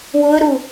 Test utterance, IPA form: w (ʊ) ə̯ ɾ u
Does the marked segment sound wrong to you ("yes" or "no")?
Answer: no